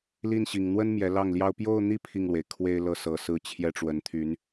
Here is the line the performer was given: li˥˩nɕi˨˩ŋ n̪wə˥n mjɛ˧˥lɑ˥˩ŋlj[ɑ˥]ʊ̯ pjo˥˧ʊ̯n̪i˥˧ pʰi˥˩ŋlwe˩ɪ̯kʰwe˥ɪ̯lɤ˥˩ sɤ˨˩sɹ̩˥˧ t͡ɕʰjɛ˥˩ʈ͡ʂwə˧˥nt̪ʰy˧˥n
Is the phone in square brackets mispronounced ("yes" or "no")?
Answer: no